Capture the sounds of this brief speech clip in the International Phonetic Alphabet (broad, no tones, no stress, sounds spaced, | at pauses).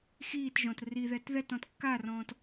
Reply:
x iː t ʒ ɔ̃ t r i ð ɛ t ð ɛ t ɔ̃ t kː a r ɔ̃ː t